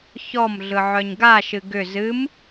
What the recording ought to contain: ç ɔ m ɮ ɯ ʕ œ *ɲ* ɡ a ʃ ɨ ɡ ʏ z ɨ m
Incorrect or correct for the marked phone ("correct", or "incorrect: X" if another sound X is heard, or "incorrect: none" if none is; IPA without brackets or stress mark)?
correct